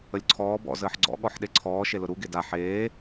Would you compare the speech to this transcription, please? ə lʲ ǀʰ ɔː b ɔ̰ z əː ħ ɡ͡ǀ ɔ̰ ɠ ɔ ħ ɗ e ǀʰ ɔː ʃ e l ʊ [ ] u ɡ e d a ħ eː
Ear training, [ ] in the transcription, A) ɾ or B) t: A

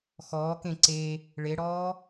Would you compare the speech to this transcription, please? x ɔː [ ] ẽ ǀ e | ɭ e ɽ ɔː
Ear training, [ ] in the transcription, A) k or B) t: A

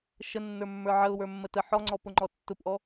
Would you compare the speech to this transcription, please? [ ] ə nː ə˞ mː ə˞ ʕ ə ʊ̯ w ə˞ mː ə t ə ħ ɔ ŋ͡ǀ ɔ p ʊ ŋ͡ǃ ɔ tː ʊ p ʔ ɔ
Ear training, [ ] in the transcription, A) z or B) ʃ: B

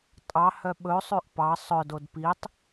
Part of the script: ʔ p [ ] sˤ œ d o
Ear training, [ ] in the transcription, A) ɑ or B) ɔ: A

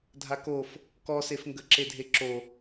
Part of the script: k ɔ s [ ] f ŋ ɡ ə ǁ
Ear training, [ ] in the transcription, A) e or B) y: A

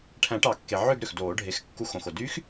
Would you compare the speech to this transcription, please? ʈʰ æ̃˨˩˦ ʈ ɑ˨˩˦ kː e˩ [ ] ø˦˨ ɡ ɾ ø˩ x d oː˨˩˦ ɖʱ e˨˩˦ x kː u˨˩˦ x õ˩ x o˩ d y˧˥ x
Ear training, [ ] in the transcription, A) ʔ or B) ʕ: B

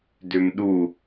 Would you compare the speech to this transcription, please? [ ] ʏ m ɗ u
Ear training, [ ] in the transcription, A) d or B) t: A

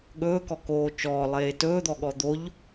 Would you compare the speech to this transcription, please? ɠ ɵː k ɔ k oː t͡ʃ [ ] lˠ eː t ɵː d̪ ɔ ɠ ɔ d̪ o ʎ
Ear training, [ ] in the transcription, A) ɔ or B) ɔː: B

